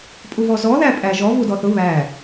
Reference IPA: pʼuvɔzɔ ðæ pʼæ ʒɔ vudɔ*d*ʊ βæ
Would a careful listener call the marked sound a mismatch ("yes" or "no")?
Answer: yes